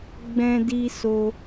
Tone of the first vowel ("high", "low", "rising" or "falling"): high